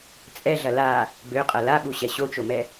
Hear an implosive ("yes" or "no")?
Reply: yes